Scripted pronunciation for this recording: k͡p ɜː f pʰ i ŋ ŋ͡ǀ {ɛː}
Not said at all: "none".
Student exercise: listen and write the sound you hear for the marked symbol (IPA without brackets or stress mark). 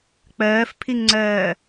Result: ɜː